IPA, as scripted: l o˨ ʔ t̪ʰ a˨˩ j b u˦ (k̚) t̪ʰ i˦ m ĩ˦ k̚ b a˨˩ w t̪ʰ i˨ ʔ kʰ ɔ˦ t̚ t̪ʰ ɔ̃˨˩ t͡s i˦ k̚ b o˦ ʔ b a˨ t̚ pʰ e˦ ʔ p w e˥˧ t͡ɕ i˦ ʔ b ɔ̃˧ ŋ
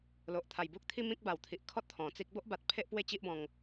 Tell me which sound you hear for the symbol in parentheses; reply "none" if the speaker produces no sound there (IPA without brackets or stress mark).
k̚